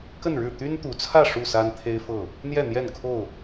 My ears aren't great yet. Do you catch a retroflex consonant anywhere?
yes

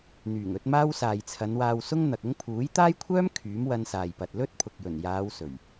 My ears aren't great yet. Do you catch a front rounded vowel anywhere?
yes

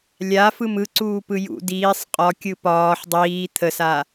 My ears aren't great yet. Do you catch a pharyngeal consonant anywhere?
yes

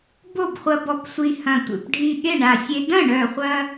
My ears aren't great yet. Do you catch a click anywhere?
no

